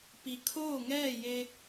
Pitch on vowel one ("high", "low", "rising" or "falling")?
low